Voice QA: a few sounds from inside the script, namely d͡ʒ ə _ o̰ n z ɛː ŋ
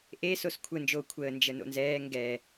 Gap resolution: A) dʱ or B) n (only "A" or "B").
B